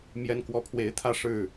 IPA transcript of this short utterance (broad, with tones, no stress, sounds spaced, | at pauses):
m j ɛ˦ n k w ɔ˦ pʰ w e˨˦ ɪ̯ t̪ʰ ä˥˨ ʂ ɻ̩˥˨